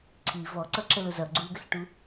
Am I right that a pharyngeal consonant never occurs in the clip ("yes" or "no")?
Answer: yes